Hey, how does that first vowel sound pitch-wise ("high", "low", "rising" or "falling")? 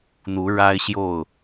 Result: rising